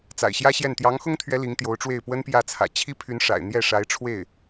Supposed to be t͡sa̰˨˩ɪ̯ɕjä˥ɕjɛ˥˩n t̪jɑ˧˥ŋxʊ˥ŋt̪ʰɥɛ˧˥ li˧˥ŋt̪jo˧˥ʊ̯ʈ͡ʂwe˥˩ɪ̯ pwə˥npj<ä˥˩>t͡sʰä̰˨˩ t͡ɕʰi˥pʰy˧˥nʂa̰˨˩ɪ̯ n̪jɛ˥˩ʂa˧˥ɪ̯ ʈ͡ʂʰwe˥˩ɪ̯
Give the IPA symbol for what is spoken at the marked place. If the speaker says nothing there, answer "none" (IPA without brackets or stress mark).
ä˥˩